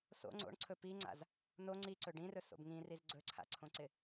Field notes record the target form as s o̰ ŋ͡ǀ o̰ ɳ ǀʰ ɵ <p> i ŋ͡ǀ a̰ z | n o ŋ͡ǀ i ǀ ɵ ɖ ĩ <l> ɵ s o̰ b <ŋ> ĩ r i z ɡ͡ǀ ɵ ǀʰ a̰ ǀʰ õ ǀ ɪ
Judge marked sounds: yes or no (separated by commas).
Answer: yes, no, yes